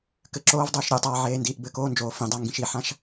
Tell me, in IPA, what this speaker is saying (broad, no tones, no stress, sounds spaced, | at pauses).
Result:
k ɘ ǁ oː v dˤ oː ʃ ɾʲ ɛ tˤ aː ʕ eː n d iː ʔ b ɘ k oː n d͡ʒ oː f ĩ dˤ a ŋ ɡ ĩ ʃ i ħ ã ʃ